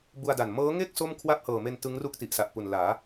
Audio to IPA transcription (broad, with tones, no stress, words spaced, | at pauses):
bu˧a̯da˨˩n mɤː˦˥ŋe˥˩k̚ so˥˩mkʰwa˥˩p̚hɤː˨˩me˧n tɯ˦˥ŋru˥˩k̚ ti˨˩ʔsa˨˩ʔpu˨˩n laː˩˦